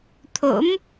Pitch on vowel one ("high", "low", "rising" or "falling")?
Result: rising